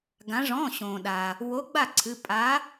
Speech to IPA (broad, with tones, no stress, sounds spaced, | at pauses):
ɡ ã˩˧ ʐ ɔ̃˩˧˩ ɕ õː˩ ɗ aː˩ | w o˨˥ ɡ͡b a˥˩ ǀʰ ɨ˩˧˩ pʼ a˨˥